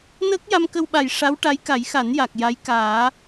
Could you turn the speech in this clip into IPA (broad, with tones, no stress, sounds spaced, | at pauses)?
n əː˦˥ k̚ j a˧ m k ə˧ w ɓ a˨˩ j ʂ a˧˥ w ʈ a˧˥ j k a˨˩˦ j x a˨˩˦ n j a˨˩ k̚ j a˧˥ j k aː˨˩˦